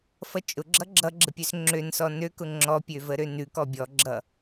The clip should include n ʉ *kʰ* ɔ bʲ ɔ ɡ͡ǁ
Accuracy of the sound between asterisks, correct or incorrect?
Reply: incorrect